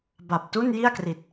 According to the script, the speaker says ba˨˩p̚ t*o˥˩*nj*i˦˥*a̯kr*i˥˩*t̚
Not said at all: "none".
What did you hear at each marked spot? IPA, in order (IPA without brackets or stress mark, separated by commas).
u˥˩, i˥˩, i˨˩